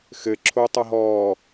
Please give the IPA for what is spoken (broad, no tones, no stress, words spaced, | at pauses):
xɘ ǁʰotˤɐɦɔː